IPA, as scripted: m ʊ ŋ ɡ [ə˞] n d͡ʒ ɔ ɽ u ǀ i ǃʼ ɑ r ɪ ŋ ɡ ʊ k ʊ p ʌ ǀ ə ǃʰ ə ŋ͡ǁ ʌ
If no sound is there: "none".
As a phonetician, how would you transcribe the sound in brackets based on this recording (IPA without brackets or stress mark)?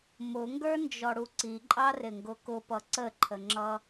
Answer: ə˞